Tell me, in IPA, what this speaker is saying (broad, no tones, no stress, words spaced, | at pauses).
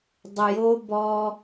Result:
dˤʊjo bɔ